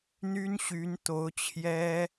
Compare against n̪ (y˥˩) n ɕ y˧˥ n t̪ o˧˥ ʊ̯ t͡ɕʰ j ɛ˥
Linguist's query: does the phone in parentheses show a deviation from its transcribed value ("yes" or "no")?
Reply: yes